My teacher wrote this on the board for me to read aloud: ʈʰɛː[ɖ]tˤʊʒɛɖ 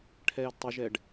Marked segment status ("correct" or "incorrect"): incorrect